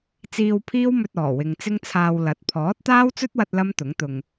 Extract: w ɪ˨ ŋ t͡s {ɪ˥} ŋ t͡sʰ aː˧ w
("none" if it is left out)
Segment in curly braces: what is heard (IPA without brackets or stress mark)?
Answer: ɪ˥